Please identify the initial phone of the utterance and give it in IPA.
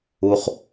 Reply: u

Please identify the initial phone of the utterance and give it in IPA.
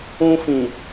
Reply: ũ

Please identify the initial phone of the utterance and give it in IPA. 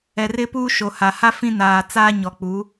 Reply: ɛ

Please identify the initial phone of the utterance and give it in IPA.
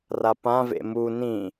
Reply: r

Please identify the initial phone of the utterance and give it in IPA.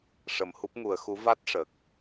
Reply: ʂ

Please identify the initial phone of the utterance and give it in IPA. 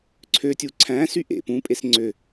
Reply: ǀʰ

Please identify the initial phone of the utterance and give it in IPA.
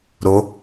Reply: ɾ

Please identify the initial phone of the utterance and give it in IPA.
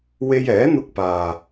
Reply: w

